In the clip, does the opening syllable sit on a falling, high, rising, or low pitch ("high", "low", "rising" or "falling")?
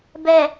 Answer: low